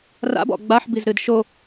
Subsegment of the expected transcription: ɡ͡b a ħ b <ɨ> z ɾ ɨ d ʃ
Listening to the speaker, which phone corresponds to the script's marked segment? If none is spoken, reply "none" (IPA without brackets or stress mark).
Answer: i